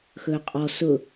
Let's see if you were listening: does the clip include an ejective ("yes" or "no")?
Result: yes